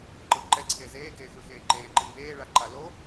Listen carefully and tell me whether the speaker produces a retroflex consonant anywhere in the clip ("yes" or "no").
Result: yes